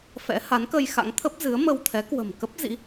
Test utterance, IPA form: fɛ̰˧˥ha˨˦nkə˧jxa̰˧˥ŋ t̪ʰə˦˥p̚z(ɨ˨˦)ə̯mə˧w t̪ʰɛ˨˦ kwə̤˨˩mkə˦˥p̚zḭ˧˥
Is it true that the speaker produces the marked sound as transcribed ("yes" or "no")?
yes